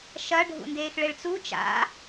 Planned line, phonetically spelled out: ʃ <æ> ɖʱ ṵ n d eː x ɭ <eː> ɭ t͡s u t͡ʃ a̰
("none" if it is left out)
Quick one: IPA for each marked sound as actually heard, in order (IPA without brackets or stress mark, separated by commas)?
ɐ, e